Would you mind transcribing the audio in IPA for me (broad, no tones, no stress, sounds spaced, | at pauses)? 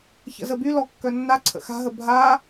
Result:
ç ə̰ z ə b y l ɔ kː œ nː a ǀʰ ə̰ x a̤ ɦ ə bʱ a